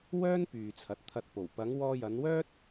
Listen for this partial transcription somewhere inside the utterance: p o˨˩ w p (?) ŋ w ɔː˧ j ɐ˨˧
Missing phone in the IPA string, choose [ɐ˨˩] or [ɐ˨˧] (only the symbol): ɐ˨˧